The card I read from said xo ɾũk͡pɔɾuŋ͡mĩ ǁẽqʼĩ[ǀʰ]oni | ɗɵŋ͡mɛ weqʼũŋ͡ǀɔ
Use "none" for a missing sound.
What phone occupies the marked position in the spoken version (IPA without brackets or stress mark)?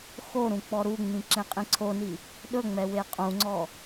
ǀʰ